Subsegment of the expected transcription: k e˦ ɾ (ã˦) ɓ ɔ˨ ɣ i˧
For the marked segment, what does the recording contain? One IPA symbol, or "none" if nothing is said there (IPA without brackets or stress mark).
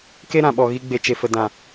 ã˨